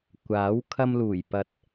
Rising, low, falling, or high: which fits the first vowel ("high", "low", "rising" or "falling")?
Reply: rising